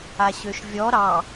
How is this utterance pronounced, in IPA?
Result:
aɕøʃvʲɔ ɾɑ

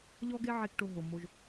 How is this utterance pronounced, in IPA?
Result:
ʎɔ˥ɡe˥ ʕe˥kʈo˦ ɦo˩mo˦ʒ

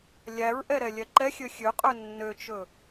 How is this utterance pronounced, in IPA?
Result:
lʲæɹʔɛ ɾɛlʲɛǃɛxʲø xʲøqʼø nːøt͡ʃɵ

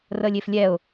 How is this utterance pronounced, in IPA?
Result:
rəːlʲɪːflʲɛʊ̯

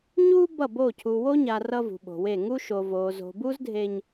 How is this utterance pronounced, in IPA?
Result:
ɲu˦ bʌ˦˨bo˦˨ cʰu˨wo˦ɲa˨ rʌ˦vṳ˨ɓo̤˨we˦˨ ŋu˦ʃo˨ vo˨zo̤˨bu˦zdʱe˨ɲ

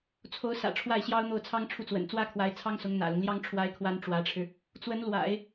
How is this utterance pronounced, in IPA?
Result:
t͡sʰo˧˥ʊ̯sä̰˨˩ ʈ͡ʂʰwa˥˩ɪ̯ɕjɑ˥ʊ̯n̪o˥˩ʊ̯ t͡sʰɑ˥ŋʈ͡ʂʰu˥˩ t͡swə̰˨˩nt͡swä˥kʰwa˧˥ɪ̯ t͡sʰɑ˥ŋsʊ˧˥ŋ n̪ä̰˨˩lʊ˦ŋljɑ˥ŋ ʈ͡ʂʰwa˥ɪ̯kʰwa˥n ʈ͡ʂwä˧˥ʈ͡ʂʰɻ̩˧ | t͡swə˧˥n lwa̰˨˩˦ɪ̯

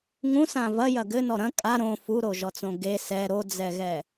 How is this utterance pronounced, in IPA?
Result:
ŋũsã vɐjɐ ɡɘnɔ ɾɐ̃ kʼa ɾõ fuɾoʒɔt͡sõ ɡe sɛ ɾod͡zɛɣɛ

